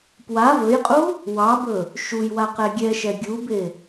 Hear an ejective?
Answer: yes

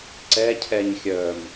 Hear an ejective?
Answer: no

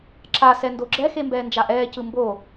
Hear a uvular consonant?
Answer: no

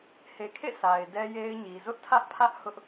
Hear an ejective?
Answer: no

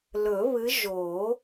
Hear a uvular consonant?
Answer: no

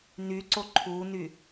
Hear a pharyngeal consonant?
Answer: no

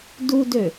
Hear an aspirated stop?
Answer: no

